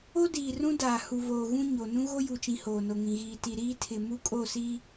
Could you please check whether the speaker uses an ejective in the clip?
yes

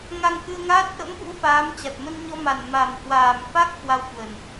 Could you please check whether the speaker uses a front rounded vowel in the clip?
no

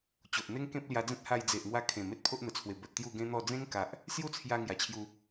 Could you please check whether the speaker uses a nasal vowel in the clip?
yes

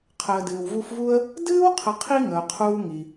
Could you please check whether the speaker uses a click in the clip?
no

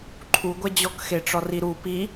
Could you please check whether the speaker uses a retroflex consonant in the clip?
yes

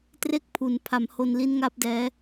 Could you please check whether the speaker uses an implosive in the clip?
no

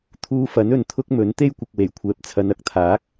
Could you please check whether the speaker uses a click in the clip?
no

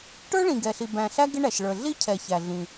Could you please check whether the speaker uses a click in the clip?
no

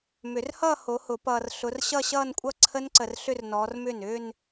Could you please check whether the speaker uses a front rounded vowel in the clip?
yes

